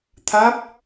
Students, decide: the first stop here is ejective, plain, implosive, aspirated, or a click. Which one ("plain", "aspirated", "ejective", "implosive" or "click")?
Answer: aspirated